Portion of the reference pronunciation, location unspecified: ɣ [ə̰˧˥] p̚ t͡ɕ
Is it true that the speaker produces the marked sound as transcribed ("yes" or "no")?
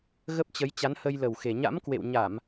no